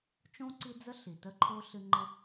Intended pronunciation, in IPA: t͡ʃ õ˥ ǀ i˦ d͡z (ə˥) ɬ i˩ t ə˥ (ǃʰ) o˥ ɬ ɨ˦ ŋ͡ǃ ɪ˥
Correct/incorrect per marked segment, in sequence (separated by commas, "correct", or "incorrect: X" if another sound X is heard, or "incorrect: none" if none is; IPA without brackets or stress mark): correct, correct